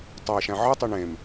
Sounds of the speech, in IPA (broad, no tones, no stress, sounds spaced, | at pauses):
tˤ o e̯ ʃ æ̃ ʕ ɯ tˤ i ɳ ẽ m